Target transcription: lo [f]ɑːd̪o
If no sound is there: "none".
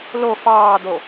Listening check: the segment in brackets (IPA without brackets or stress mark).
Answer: f